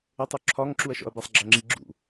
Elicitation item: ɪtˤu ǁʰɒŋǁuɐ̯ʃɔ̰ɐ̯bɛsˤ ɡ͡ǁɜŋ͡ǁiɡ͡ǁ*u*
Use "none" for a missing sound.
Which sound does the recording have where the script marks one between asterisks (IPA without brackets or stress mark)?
ṵ